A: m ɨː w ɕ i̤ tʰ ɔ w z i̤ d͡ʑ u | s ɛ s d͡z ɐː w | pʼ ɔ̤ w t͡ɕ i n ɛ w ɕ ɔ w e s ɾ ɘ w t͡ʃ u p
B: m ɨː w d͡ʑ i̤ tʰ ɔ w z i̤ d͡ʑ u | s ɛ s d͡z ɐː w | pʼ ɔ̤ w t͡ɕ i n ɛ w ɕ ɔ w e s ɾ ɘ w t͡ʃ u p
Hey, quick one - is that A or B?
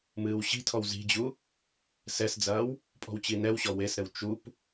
A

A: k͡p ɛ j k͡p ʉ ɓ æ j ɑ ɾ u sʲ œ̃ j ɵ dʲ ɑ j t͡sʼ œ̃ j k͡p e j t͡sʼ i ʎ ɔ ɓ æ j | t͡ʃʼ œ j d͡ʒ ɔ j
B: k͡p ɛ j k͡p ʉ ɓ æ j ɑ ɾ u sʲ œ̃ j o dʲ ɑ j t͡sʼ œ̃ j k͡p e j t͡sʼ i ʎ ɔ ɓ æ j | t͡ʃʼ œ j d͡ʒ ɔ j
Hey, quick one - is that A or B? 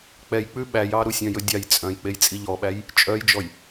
A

